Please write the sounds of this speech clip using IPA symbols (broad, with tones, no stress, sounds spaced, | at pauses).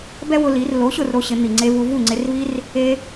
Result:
b ɛ˥ w ʊ˧ l i˩˥ r l o˩˥ ɕ ʊ˥˩ r ɾ o˩˥ ɕ ɪ˩˥ n̪ i˩ ŋ͡ǀ e˧ v u˧ v u˥˩ ŋ͡ǀ ɪ˧ r v i˥ r | e˧